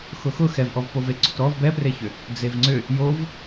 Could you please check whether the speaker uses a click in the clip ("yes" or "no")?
yes